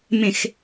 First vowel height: mid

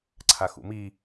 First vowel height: low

